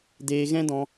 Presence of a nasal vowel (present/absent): present